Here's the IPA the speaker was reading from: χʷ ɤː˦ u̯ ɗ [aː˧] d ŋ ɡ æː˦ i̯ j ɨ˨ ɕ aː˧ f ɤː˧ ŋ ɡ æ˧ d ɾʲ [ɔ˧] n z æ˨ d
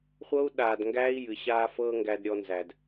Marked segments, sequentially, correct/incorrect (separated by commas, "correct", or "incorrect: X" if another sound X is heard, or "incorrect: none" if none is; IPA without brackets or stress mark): correct, correct